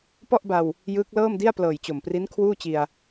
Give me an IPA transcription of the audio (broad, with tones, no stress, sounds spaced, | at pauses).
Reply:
p ɔ˥˩ ʔ b a˧ w | j ɯː˦˥ k̚ l ɤː˥˩ m d i˥˩ a̯ p l ɤː˨˩ j t͡ɕ o˨˩ m p r i˦˥ n kʰ w uː˥˩ t͡ɕ i˧ a̯